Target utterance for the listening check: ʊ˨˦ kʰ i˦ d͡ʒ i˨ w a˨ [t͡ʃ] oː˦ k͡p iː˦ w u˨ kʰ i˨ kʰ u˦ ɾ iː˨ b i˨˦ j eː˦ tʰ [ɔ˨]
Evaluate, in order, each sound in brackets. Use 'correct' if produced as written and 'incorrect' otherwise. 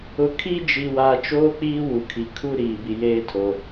correct, incorrect: o˨

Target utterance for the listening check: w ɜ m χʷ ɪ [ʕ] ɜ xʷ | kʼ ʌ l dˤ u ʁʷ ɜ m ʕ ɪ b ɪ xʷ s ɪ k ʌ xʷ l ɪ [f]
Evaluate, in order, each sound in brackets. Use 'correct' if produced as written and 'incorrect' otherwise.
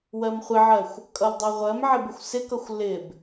correct, incorrect: b

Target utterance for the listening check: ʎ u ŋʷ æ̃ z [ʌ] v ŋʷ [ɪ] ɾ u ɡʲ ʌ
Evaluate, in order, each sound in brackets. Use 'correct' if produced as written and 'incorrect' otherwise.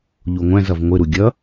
correct, correct

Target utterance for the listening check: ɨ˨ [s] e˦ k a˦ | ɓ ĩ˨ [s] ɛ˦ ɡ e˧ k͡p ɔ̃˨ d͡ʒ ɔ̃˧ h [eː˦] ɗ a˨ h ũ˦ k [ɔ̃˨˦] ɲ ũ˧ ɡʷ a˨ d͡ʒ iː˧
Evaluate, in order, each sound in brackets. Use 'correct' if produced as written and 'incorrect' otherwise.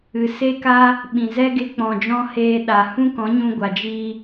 correct, incorrect: z, incorrect: eː˧, correct

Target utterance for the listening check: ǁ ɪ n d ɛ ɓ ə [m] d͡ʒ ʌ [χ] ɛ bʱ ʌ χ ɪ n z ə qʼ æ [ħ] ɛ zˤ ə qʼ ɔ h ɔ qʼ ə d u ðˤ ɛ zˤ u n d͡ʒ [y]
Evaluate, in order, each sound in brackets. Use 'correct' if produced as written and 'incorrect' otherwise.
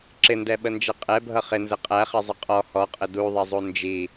incorrect: n, incorrect: qʼ, incorrect: χ, incorrect: i

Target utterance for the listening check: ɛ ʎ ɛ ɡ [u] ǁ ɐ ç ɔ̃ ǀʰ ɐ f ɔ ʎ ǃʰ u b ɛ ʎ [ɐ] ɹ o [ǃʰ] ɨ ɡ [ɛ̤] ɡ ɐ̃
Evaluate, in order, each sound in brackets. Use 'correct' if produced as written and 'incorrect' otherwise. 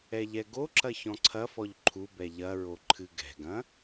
incorrect: o, correct, correct, correct

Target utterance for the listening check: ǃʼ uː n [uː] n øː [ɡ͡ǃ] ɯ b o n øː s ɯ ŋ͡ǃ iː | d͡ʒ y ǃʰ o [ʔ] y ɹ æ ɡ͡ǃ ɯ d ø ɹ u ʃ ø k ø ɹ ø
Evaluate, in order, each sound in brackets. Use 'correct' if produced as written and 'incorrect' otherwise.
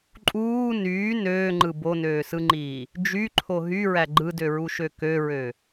incorrect: yː, incorrect: ŋ͡ǃ, incorrect: ɦ

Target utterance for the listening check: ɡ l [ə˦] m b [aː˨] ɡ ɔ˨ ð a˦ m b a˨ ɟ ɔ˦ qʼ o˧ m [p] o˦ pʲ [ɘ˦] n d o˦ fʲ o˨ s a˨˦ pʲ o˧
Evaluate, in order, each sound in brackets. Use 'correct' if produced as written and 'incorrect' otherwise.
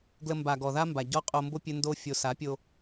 incorrect: ə˧, incorrect: a˨, incorrect: b, correct

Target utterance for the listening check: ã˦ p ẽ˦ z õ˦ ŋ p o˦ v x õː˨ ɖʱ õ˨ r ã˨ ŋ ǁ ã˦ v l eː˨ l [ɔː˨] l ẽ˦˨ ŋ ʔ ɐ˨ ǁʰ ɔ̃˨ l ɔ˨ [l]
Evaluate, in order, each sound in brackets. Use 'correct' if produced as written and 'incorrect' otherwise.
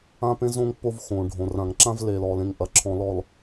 correct, correct

